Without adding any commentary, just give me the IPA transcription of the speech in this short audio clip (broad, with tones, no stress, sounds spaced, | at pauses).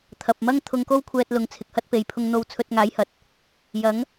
t̪ʰ ɐ˨ p̚ m ɐ˥ ŋ t̪ʰ ʊ˧ ŋ k o˥ w kʷʰ ɛː˧ t̚ l ʊ˨˧ ŋ t͡sʰ ɪ˨ k̚ h ɐ˥ t̚ p e˨ j pʰ ʊ˧ ŋ n̪ o˧ w t͡sʰ ɵ˧ t̚ ŋ aː˨˥ j h ɐ˨ t̚ | j ɐ˨˥ ŋ